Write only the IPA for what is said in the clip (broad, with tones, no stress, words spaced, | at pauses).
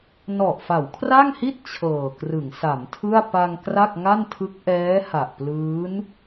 nɔ˨˩ʔfa˩˦wkʰra˥˩ŋhi˥˩t̚ t͡ɕʰɤː˨˩krɯ˩˦ŋsa˩˦mtʰɯ˥˩a̯ pa˧ŋ kra˥˩k̚ŋa˥˩ntʰɯ˦˥k̚ ʔɛː˦˥ha˨˩ʔplɯː˦˥n